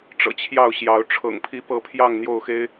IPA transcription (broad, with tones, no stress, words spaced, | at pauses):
ʈ͡ʂɤ̰˨˩t͡ɕʰjɑ˥˨ʊ̯ɕjɑ˨˦ʊ̯ ʈ͡ʂʰɤ̰˨˩ŋpʰi˨˦pɤ˨˦ pʰjɑ˥˨ŋn̪jo˥˨ʊ̯xe˦ɪ̯